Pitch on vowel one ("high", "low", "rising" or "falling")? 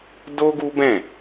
high